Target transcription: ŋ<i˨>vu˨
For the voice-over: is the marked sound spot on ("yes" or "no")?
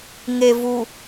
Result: no